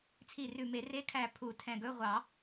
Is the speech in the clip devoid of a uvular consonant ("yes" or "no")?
no